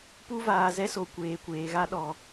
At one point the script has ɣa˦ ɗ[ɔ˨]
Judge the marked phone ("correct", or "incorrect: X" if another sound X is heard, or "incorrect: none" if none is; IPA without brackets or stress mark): correct